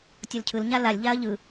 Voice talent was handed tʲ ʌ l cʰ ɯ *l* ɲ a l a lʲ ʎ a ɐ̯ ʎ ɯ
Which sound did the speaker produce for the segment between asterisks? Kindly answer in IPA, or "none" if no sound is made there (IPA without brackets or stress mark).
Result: l